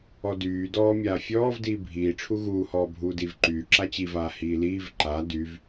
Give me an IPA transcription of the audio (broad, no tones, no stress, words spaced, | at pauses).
ɔdyːdɔː mʲaːfʲɔːv diːbʱiːʈ͡ʂʰu ɣuːhɔː bʱuːdiːvǃyː ǁat͡ɕivaː hiːliːv ǃa dyv